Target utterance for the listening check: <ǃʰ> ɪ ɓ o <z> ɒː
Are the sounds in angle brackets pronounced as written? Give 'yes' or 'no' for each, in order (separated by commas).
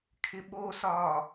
no, no